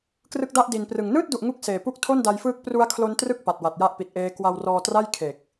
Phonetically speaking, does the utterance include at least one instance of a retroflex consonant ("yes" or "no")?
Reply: no